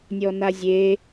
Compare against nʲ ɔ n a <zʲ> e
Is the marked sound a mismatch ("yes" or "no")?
no